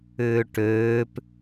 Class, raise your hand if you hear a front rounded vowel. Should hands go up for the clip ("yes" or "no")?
yes